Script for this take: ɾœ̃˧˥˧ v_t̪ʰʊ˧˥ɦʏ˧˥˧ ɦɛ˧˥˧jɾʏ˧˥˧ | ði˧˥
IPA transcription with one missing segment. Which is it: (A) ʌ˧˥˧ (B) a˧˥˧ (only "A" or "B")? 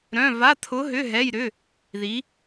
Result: B